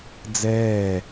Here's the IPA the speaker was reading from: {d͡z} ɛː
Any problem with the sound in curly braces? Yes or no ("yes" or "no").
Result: no